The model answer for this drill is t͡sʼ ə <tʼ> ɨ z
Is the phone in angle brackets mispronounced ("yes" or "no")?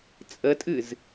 no